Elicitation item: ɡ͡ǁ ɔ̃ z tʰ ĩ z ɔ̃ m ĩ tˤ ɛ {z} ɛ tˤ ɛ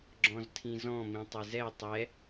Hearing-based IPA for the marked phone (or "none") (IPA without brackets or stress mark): z